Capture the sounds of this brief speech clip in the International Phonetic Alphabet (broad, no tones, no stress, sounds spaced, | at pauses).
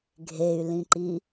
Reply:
ɡʱ e y̯ l ĩ ǃ i